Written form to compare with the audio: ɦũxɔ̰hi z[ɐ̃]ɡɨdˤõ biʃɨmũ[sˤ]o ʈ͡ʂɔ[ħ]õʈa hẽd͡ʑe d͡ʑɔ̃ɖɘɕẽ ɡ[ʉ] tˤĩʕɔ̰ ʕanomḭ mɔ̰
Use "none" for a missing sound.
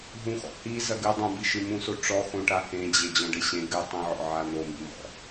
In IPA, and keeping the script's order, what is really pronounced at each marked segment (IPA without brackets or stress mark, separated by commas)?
ɐ, s, x, ɨ